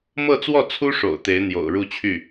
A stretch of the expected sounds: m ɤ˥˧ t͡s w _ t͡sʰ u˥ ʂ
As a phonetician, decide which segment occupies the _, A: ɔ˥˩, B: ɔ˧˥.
A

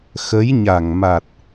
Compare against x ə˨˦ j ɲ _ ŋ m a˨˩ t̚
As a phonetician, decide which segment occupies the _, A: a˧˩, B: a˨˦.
A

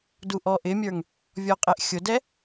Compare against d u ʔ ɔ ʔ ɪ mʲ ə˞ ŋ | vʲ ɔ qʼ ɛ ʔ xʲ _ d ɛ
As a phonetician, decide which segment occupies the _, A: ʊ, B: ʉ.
A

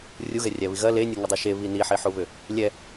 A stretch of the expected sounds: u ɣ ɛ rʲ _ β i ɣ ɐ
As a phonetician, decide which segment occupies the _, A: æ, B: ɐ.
A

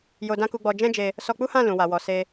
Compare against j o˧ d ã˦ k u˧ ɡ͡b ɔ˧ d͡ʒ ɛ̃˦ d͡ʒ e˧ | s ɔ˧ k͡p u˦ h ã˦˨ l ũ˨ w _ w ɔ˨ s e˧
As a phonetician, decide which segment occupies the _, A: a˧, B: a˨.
B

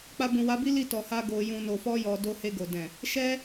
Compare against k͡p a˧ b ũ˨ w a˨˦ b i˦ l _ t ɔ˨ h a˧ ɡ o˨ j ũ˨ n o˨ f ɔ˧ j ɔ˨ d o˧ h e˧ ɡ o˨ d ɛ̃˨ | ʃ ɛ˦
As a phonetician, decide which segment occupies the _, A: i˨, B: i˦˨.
B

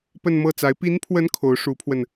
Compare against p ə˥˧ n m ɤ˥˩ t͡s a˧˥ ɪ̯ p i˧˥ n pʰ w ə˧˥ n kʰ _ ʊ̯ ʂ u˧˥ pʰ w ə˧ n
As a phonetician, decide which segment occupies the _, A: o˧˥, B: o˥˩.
A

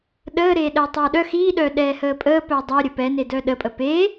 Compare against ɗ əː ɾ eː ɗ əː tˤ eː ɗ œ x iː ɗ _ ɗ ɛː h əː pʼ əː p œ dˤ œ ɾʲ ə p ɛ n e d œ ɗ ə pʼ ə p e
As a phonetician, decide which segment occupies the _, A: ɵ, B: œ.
B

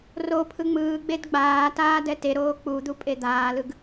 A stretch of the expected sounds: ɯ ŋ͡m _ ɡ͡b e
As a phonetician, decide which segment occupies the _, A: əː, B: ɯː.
B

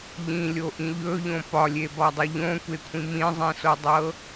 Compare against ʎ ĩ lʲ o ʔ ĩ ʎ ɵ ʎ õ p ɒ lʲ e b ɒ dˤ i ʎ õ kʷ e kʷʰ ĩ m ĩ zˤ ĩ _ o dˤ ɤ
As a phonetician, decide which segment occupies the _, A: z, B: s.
B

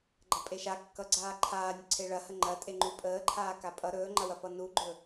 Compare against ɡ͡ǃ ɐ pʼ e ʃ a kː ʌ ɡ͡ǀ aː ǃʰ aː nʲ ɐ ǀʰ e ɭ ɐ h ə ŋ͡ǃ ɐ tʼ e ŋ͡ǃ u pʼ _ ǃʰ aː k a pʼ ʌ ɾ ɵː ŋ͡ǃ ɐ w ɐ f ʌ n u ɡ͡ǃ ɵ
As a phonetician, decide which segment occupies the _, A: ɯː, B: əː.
B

